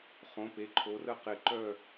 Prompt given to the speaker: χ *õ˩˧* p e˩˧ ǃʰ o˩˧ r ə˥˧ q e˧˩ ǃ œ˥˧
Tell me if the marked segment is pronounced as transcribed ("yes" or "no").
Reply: yes